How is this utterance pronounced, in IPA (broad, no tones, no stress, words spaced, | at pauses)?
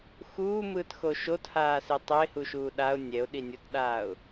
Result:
xuːmɯːtxo ʃothaːse tˤɛɪ̯huʃuː ɗaʊ̯ nʲɛʊ̯ɗinʲotɗaːʊ̯